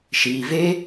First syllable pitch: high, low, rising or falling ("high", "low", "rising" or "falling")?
low